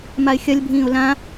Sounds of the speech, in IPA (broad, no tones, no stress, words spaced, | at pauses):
maɪ̯xʲɐlʲbʱĩːʊ̯ lã